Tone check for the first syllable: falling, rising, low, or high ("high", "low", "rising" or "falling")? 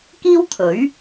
high